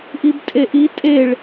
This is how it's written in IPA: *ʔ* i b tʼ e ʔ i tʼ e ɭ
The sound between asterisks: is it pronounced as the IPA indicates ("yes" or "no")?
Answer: yes